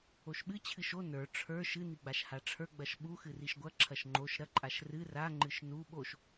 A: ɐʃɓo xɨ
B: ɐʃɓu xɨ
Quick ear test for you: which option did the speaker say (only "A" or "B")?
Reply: B